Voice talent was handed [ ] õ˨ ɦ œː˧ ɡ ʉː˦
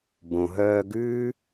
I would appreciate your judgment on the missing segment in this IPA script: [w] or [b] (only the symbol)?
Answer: b